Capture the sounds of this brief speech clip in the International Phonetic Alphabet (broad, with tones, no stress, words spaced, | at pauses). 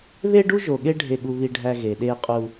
βe˦ɖu˦ʒo˨ɠe˦ ɖʱe˦˨ɠu˦βi˦ɖʱæ˦ ɣe˨ɗe˦qʼu˦